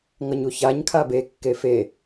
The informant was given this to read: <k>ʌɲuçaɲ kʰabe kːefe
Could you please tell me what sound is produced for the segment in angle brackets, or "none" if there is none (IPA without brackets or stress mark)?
ŋ